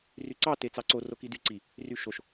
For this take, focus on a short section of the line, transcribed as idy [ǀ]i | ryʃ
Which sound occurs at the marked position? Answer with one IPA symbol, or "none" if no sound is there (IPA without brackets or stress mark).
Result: ǀ